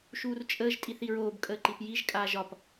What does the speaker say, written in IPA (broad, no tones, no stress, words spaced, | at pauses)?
ʃuːrt͡ʃʼəːʒ tʼiθiɹoːb kʼəːǃipjiʒ kʼaːʒɒp